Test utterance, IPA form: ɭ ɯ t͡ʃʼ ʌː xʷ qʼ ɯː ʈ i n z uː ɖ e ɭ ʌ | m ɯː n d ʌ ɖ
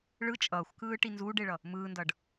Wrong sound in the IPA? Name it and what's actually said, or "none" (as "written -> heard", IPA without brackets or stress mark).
qʼ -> k